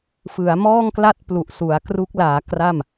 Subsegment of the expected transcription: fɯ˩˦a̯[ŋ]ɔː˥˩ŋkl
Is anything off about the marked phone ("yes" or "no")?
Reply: yes